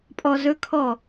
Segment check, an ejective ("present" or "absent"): present